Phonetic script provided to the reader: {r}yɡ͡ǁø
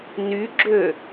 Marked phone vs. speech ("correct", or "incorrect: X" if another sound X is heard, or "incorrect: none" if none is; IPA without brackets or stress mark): incorrect: n